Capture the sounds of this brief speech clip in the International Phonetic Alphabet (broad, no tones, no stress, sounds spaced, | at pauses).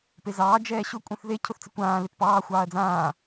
p e z ɑː d͡ʒ ɛː ɕ ʊ kʷʼ ɛ̃ θ ð e cʰ ʊ θ t͡s ɪ kʷ ãː l e t p ɑː xʷ ɑː ɐ̯ d͡z ãː